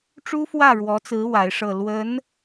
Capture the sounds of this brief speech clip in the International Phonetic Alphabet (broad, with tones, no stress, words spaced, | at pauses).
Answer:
ʈ͡ʂu˥fwä˥˩ɻwɔ˧˥t͡sɹ̩˧˥ wa˧˥ɪ̯ʂɤ˥˩ lwə˧˥n